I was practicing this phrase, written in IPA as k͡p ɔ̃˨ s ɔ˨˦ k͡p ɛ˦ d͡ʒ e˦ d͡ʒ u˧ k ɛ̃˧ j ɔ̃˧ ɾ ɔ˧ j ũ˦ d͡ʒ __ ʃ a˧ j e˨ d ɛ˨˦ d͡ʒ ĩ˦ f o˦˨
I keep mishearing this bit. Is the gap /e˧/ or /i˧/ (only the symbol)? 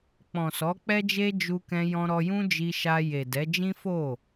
i˧